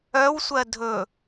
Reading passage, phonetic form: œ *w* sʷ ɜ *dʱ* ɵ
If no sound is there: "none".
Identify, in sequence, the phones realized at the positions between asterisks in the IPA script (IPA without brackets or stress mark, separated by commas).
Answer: w, dʱ